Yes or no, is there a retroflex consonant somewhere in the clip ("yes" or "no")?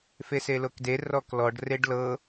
yes